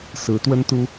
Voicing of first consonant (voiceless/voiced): voiceless